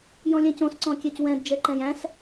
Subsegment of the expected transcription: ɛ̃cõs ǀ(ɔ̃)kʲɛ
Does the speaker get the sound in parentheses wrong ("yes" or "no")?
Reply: no